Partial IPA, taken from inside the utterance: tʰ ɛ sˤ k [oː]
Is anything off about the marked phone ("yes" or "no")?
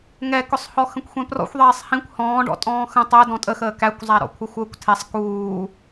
yes